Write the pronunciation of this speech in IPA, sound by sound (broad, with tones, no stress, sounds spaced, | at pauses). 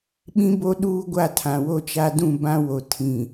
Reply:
ɓ ĩ˦ b o˦ ɗ uː˦ ɡʷ a˦˨ tʰ ã˨ w o˦ t͡ʃ a˦ d ũ˦˨ b ã˦ w o˨ tʰ ĩ˨